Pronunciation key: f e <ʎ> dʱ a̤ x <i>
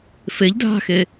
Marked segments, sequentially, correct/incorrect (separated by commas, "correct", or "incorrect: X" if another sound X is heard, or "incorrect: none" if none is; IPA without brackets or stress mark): correct, incorrect: e